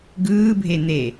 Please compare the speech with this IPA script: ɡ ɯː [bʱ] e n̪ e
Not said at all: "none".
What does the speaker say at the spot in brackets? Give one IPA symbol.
bʱ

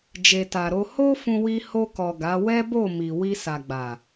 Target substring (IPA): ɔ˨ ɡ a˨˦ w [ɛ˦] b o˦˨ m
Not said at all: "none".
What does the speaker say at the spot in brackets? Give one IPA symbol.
ɛ˦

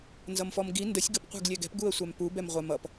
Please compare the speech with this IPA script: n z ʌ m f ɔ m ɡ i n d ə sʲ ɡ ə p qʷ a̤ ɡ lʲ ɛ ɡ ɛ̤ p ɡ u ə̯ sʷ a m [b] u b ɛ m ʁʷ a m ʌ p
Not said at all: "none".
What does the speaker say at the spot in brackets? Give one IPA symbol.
p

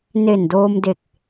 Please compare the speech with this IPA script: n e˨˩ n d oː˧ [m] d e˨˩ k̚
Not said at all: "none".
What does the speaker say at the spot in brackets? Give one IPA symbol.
m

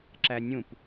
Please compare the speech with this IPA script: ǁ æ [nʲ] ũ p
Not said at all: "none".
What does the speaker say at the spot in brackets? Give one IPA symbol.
nʲ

